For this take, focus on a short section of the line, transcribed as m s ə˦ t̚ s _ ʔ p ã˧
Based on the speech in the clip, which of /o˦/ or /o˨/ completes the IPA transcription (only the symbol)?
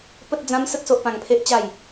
o˦